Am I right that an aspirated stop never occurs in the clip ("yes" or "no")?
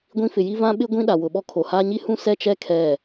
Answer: no